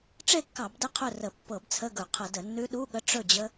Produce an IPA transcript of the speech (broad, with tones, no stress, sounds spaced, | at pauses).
ʈ͡ʂ e˥˨ kː ɑ˧˩˧ b d ə˥˨ qʰ ɵ˥˨ r ə˧˩˧ pː ɤ˧˩˧ b t͡sʰ ə˧˥˧ ɡ ɵ˧˩˧ qʰ ə˧˩˧ d ə˧˩˧ nː ʉ˦˥ ɗ u˧˥˧ ɠ ə˦˥ ʈ͡ʂ ɵ˥˨ d͡ʑ ə˦˥